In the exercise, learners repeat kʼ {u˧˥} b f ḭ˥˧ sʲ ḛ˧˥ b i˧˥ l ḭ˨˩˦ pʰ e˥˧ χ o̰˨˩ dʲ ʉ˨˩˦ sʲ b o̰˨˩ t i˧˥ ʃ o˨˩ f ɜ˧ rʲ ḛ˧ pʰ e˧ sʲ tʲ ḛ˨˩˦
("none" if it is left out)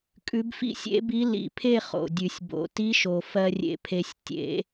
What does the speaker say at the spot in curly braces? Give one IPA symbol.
ʉ˧˥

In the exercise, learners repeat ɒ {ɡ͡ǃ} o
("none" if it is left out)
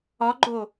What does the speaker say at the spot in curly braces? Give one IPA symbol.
ɡ͡ǃ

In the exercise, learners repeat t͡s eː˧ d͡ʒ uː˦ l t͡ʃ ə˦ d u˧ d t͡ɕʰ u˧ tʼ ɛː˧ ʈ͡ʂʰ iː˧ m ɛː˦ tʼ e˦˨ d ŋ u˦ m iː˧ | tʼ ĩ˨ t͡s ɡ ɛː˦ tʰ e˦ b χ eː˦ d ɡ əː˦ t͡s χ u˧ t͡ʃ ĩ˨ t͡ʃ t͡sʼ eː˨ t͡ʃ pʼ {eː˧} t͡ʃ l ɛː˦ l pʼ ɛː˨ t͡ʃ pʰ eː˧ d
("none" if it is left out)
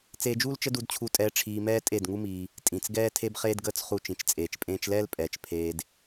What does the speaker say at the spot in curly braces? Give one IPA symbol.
ẽː˧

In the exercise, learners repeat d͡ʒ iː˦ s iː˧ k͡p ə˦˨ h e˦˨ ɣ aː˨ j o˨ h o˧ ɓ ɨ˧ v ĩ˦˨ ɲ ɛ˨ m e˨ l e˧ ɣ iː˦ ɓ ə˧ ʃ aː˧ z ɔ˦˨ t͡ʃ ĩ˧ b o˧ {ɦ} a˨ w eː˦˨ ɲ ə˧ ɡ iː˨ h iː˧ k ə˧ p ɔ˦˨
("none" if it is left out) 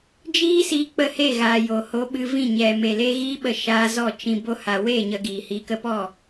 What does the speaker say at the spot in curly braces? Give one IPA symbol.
h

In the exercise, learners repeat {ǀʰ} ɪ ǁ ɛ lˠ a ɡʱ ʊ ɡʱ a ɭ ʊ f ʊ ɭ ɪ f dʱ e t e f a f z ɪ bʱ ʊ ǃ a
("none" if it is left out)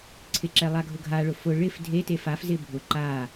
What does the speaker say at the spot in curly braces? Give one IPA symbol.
ǀʰ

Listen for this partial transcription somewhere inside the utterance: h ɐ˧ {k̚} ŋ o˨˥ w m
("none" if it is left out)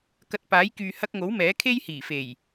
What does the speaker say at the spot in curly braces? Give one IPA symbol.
k̚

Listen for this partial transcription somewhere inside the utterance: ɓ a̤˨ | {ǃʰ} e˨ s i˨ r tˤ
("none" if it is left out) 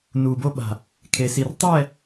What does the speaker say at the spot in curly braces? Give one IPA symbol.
kʰ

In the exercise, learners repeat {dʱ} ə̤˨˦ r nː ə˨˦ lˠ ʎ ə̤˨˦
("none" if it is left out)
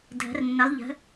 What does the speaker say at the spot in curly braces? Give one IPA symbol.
dʱ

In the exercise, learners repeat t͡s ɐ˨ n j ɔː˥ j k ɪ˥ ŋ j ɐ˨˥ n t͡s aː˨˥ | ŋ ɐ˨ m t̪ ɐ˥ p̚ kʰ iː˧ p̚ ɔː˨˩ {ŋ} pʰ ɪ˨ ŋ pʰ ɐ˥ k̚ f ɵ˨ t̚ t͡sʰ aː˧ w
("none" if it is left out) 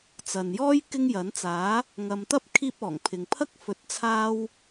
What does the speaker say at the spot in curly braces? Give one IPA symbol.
ŋ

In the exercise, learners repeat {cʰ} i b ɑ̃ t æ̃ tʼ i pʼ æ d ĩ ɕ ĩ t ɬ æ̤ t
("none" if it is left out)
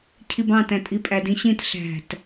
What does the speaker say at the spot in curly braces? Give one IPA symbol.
cʰ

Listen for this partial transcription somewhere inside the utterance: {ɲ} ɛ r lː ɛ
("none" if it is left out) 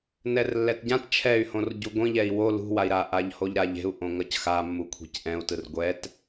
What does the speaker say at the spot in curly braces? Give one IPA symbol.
n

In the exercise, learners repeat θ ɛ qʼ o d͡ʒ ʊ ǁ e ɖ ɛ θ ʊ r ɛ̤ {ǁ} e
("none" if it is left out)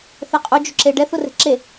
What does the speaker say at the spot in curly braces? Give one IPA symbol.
ǁ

